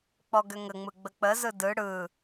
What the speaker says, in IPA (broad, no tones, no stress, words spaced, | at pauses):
k͡pɔɡʏŋəŋ͡mɯ ɡ͡bək͡pəzɯ dɯ ɽɯ